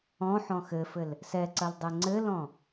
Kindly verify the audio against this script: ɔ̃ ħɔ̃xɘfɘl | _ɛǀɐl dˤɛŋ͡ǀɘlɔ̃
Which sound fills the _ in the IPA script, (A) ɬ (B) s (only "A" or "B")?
B